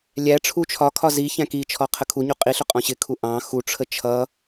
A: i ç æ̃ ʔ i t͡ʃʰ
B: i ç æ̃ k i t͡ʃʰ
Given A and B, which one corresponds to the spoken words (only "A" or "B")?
B